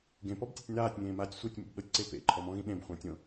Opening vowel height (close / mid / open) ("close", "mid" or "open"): mid